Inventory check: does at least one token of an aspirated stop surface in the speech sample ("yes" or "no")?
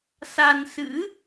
no